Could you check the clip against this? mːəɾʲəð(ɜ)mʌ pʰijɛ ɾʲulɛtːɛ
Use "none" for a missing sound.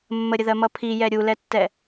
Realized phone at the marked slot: ɜ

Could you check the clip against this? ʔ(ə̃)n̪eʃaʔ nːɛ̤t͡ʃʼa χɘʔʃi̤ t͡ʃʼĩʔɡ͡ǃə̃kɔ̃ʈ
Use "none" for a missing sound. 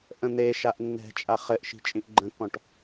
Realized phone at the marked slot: ə̃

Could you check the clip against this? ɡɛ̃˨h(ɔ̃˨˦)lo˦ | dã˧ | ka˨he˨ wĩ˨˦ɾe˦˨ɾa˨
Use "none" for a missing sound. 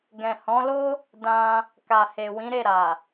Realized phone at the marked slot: ɔ̃˨˦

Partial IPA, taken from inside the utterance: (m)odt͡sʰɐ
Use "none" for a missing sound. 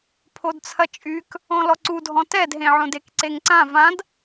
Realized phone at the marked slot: pʰ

